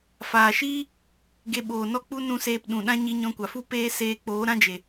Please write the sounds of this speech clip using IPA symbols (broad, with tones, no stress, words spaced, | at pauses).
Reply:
faː˨ʃiː˦ | ɡe˧ɓoː˨nɔ˦k͡pu˦ nũ˧seː˧p ɗũ˨ɗã˦ ɲi˧ɲɔ̃˧kʷa˨fu˦ peː˦ seː˧k͡poː˨˦ ɾã˦d͡ʒe˨